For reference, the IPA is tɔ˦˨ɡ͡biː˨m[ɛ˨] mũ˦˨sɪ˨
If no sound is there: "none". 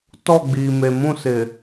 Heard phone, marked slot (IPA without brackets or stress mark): e˨